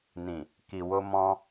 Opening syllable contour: low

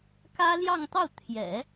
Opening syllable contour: high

